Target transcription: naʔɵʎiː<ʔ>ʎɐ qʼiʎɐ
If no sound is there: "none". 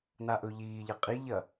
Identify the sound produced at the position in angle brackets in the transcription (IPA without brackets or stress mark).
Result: none